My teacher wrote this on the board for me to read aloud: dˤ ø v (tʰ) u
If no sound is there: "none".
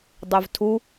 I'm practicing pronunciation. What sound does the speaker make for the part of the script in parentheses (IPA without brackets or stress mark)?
tʰ